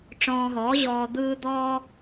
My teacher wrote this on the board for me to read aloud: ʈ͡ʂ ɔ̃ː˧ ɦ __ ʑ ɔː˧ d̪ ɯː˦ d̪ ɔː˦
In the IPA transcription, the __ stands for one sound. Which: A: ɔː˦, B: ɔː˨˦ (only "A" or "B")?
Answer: B